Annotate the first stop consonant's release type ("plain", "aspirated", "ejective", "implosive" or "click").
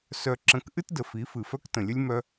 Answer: click